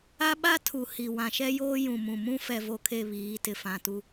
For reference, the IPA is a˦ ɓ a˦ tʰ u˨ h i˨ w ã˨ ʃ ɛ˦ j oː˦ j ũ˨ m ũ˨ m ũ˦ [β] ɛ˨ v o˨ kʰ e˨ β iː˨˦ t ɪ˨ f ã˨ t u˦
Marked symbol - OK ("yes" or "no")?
no